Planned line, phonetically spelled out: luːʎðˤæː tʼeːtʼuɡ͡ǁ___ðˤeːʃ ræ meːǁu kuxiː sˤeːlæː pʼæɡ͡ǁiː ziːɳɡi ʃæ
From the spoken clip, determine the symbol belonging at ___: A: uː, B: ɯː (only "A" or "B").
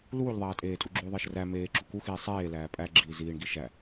A